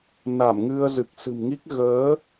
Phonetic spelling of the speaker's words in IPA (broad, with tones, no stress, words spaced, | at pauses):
na˧˩mŋɨ˧ə̯ zɨ˨˩k̚sɨ̤˨˩mŋi˦˥k̚ ɣəː˨˦